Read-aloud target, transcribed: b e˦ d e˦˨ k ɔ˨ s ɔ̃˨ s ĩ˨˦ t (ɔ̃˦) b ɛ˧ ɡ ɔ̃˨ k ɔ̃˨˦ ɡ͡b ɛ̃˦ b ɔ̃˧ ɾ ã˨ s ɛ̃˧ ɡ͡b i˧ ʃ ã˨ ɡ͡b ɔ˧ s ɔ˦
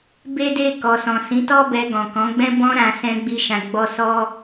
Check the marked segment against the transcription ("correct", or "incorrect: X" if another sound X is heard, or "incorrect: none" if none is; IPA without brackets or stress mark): incorrect: ɔ˦